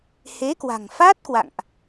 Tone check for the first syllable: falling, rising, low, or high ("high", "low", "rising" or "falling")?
rising